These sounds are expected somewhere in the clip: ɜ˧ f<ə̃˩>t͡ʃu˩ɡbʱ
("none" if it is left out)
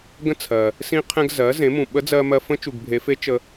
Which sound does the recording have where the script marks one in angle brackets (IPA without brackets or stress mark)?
ə̃˧˥